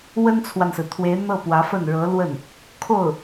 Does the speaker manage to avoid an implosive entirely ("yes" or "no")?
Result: yes